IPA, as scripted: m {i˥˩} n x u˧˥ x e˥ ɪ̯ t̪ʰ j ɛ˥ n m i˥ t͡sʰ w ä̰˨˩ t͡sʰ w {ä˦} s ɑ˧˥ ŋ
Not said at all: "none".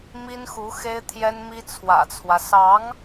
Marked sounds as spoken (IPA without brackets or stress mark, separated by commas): i˥, ä˦